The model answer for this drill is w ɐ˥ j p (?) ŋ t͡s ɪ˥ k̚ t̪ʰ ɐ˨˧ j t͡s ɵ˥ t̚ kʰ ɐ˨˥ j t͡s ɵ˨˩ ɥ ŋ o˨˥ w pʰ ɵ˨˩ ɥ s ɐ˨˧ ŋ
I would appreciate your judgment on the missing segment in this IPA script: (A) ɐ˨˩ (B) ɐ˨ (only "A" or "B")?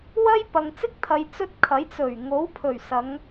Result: B